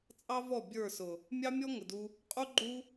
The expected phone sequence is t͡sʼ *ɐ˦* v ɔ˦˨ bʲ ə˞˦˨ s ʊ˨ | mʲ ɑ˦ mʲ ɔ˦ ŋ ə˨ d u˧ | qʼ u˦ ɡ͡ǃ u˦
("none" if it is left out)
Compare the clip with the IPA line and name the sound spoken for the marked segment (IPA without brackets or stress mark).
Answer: ɑ˦